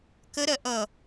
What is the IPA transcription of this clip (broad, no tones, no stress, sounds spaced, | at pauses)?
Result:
k ə ɾ ɜ ʔ ʌ